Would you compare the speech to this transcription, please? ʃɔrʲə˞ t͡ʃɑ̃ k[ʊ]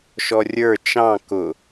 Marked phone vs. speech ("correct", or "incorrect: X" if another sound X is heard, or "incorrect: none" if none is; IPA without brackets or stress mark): correct